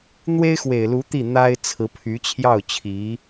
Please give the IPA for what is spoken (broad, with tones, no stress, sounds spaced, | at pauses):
n̪ w e˥ ɪ̯ x w e˨˩ ɪ̯ l u˧˥ t̪ i˥˩ n̪ a˥ ɪ̯ t͡sʰ ɹ̩˧˥ pʰ y˧˥ t͡ɕʰ j ɑ˥˩ ʊ̯ t͡ɕʰ i˧˥